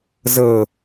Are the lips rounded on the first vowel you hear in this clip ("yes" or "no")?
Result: no